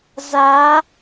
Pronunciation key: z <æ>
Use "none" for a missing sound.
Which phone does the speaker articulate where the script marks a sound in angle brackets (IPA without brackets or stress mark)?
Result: a